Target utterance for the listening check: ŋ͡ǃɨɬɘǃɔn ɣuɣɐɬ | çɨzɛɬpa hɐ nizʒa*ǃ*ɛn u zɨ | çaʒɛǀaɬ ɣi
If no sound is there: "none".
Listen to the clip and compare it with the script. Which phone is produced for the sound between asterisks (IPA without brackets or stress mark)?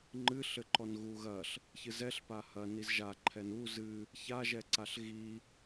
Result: ǃʰ